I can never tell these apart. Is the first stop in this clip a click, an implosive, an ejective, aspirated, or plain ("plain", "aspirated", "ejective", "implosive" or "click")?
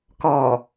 plain